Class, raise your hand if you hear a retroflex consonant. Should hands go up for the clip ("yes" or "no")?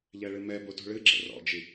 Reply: yes